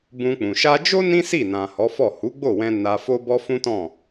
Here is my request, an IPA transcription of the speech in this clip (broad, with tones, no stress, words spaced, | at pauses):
bũ˧k͡pũ˨ ʃa˧d͡ʒo˦ nĩ˦si˦˨ nã˨ hɔ˨˦fɔ˦˨ hu˨˦ɡ͡bo˦˨wɛ̃˧ na˧fo˦bɔ˦ fũ˦tɔ̃˦˨